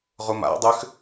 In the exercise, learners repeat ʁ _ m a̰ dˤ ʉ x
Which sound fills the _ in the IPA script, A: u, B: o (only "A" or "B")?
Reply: A